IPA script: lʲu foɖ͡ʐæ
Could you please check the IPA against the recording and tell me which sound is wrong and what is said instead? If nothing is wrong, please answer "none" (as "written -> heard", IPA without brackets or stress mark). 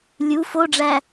none